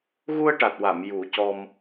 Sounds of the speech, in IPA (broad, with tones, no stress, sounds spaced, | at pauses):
ɣ u˧ ə̯ ʈ a˨˩ t̚ w a˨˩˨ m j u˨˩˦ c ɔ˧ m